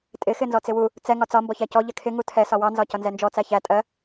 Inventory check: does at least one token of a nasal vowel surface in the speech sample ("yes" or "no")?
no